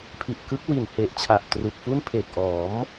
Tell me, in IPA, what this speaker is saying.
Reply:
pʰi˨˩ʔkɯ˦˥k̚ wi˨˩nhe˨˩ʔt͡ɕʰa˨˩ʔ tru˨˩k̚fu˥˩n pʰeː˨˩k̚ʔɔː˩˦m

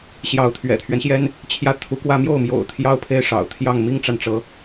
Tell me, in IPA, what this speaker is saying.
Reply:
ɕjɑ˧˥ʊ̯t̪ʰɥɛ̰˨˩t̪ʰɥɛ˦nɕjɛ˥n | t͡ɕʰjä˥˩ t̪ʰu˧˥kwä˥˧ mjo˥˩ʊ̯mjo̰˨˩ʊ̯ t̪ʰjɑ˥˧ʊ̯pʰe˥˩ɪ̯ ʂɑ̰˨˩ʊ̯t̪ʰjɑ˥˩ŋ mi˥ŋʈ͡ʂa˨nʈ͡ʂɤ˧˥

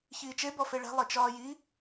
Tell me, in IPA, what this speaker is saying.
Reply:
çiːt͡ʃe bɔfeɭɛ̤ lˠit͡ʃɒːji

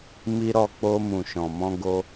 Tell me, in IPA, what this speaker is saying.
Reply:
mi˧ ɾɔ˧k͡po˧ mũ˨ʃɔ̃˨ mɔ̃˧ɡo˧

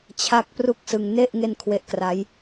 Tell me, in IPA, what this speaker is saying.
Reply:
t͡ɕʰa˦˥k̚ pru˥˩k̚sɯ˧ŋ ne˥˩ʔ ŋe˥˩nkʰwe˦˥ʔ kra˦˥j

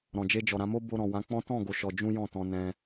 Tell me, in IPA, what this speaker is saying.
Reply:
ɾɔ̃˨d͡ʒe˧d͡ʒɔ˨ ɾã˧mo˦ bo˧ ɾɔ̃˨wã˨˦k͡pɔ̃˦ tɔ̃˦˨ ɡo˨ ʃɔ˧ d͡ʒũ˦jɔ̃˦˨tɔ̃˧ nɛ̃˦

